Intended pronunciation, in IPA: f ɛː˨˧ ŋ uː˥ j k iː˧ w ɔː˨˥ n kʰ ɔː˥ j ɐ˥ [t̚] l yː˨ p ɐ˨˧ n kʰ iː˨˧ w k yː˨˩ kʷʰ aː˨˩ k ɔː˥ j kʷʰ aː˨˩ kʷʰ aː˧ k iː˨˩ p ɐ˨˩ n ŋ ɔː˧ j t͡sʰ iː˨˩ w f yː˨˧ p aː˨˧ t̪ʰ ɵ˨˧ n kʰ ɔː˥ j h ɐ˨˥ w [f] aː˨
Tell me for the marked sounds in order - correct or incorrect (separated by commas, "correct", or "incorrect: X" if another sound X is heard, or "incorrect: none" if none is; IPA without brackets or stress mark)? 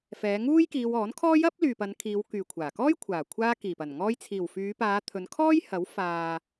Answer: incorrect: p̚, correct